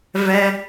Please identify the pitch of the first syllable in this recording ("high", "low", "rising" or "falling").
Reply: high